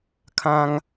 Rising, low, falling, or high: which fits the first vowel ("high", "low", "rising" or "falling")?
high